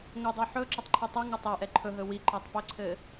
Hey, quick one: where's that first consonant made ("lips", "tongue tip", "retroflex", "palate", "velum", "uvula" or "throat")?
velum